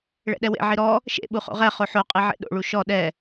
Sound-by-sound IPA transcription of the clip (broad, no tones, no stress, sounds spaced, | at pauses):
ɭ ɛ̰ ɗ ɛ w ḛ ʕ i ɾ ɔ | ʃ ḛ ɓ u χ o̰ ʁ ɛ χ o ħ o qʼ i ʕ ḛ ɗ o̰ ɭ u ʃ ɔ ɗ ɛ